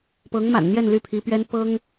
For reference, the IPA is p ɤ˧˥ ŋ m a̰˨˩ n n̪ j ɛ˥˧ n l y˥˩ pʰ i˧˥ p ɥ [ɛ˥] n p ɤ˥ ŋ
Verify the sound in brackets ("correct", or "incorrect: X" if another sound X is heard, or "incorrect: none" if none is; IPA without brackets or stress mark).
correct